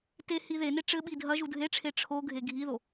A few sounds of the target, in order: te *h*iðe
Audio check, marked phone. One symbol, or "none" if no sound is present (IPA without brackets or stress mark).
h